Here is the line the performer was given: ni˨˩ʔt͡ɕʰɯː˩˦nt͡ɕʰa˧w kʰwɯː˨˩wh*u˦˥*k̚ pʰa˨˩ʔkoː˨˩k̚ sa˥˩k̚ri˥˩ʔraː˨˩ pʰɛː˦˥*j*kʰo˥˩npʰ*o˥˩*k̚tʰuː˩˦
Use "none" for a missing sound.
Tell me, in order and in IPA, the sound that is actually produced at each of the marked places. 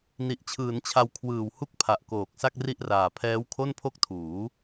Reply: u˦˥, w, o˥˩

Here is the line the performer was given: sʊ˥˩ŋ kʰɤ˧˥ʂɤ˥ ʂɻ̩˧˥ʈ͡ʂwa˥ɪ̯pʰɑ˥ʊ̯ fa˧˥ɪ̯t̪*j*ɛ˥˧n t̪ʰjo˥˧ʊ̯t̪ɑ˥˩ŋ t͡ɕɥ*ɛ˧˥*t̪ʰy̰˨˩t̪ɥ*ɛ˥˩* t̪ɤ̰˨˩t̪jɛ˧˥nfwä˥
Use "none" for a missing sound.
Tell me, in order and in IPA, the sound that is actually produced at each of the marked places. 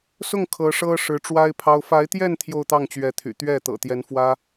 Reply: j, ɛ˧˥, ɛ˥˩

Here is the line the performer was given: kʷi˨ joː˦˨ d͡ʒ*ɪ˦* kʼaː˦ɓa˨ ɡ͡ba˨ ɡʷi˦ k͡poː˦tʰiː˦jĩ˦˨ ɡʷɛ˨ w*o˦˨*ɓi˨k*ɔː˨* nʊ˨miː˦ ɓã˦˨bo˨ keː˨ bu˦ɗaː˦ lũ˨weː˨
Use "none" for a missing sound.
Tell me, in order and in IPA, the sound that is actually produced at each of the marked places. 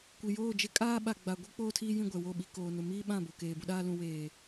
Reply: ɪ˦, o˦˨, oː˨

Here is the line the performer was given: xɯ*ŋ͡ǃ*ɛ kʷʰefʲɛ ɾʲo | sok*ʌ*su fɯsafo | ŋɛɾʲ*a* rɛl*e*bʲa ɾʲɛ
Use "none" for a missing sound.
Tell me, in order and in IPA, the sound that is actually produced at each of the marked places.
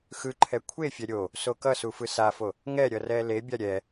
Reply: ǃʰ, ʌ, ʌ, e

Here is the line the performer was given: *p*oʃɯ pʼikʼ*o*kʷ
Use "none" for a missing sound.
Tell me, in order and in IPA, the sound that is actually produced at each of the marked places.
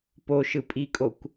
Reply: p, o

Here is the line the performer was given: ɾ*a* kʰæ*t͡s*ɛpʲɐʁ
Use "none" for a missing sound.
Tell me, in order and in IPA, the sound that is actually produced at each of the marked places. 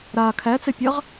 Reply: a, t͡s

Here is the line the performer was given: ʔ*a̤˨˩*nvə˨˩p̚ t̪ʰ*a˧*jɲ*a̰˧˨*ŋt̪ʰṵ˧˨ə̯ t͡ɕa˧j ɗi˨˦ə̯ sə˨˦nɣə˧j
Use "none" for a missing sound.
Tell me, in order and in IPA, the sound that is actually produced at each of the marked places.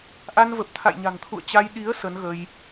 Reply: a˧, a̰˧˨, a̤˨˩

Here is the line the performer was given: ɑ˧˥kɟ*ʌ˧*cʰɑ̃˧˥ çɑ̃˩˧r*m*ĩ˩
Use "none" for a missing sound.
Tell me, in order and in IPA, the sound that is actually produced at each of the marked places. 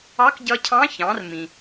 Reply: ʌ˧, m

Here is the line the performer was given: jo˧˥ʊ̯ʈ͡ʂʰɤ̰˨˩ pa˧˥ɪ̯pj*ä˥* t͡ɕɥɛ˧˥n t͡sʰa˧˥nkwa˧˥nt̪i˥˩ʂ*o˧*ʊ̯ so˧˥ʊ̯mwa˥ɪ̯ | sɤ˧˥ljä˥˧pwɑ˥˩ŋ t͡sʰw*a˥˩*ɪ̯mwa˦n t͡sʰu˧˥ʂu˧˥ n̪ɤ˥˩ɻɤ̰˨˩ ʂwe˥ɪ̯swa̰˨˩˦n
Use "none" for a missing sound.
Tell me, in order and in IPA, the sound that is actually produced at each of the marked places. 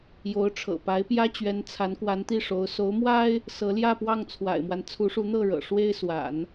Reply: ä˥, o˧˥, a̰˨˩

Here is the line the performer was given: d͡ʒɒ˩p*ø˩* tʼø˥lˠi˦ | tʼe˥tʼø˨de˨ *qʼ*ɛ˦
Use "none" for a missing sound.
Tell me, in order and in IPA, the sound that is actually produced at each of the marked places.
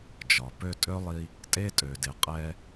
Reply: ø˦, qʼ

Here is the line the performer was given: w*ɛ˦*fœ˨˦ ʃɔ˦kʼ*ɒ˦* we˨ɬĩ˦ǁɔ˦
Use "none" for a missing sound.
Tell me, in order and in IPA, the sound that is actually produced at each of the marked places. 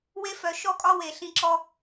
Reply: e˦, ɒ˦

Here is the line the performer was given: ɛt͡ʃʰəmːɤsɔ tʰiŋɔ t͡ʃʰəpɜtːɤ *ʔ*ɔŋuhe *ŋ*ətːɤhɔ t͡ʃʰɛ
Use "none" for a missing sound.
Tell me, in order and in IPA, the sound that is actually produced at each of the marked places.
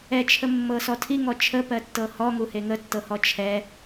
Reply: h, ŋ

